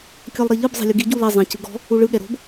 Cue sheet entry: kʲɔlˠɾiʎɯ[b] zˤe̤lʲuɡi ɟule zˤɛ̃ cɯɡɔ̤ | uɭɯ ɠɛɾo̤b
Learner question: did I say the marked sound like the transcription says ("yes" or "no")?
yes